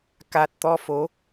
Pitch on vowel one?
low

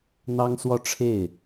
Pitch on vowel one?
high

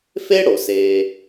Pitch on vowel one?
high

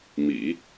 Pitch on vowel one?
low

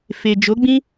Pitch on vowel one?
low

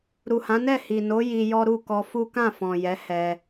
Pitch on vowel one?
low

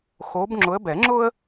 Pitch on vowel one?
rising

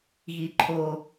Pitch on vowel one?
low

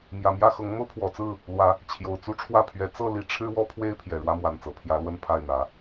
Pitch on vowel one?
low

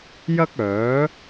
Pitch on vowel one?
high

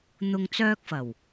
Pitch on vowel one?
low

